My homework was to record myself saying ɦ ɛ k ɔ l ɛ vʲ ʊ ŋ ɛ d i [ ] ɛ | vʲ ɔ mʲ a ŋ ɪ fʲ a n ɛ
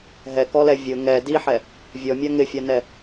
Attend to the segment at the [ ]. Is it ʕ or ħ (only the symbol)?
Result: ħ